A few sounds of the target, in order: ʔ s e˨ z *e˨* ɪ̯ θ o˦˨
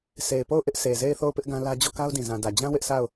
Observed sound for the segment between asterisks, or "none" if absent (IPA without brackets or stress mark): e˦˨